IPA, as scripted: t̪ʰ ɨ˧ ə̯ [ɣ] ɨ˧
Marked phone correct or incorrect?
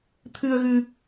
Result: correct